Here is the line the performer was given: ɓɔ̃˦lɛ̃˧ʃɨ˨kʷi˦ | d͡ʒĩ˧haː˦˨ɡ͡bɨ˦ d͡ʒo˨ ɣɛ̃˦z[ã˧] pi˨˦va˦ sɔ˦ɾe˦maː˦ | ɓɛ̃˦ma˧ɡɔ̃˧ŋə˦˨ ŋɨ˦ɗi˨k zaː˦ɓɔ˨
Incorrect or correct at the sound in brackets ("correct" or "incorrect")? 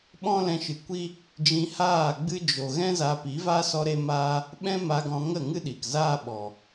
incorrect